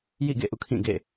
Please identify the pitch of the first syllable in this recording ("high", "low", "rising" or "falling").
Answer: falling